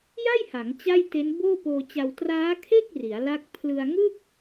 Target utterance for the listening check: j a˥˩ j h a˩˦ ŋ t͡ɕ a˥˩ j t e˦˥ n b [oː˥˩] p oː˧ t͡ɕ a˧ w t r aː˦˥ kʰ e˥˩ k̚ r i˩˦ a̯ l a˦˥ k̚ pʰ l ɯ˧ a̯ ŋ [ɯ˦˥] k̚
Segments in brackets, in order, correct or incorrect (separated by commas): correct, incorrect